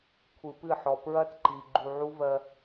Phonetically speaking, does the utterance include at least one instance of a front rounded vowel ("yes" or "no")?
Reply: no